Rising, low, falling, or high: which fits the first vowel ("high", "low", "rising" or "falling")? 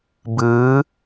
rising